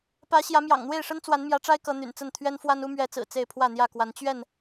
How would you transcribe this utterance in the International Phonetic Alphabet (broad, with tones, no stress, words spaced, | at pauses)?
pä˨˦ ɕjä˨˦mjɑ̰˨˩ŋn̪we˥˨ɪ̯ʂə˦n t͡swa˨˦nmjä˨˦ʈ͡ʂa˦ɪ̯ kɤ˨˦ n̪y̰˨˩nt͡sə˥˨n t̪ʰɥɛ˦nfwa˦nu˦ mɥɛ˨˦t͡sɹ̩˨˩ t͡se˥˨ɪ̯pʰwä˥˨n̪jä˥˨kwa˨˦n t͡ɕɥɛ˥˨n